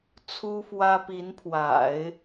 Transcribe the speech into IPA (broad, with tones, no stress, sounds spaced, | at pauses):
t͡sʰ u˥ f w ä˥ p i˧˥ n pʰ w a̰˨˩˦ ɪ̯